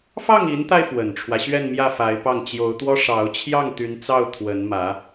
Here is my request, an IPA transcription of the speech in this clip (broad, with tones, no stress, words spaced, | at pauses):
fɑ˥˩ŋi˧˥nt̪a˧ɪ̯ fwə˨˩nʈ͡ʂʰwä˦ɕɥɛ˥˧n mjä˥˩fa˧˥ɪ̯pɑ˥˩ŋ t͡ɕjo˧˥ʊ̯t̪wɔ˥ʂɑ˧˥ʊ̯ t͡ɕʰjɑ˥˩ŋ t̪y˧˥nt͡sɑ˥˩ʊ̯ t̪ʰwə˧˥nmä˧˥